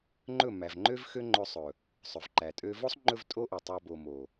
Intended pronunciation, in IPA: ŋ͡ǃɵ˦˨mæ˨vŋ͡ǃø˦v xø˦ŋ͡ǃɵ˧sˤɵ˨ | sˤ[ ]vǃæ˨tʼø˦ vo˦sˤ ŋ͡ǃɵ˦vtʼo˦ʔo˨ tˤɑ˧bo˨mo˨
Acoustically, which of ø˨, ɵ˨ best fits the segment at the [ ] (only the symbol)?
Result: ɵ˨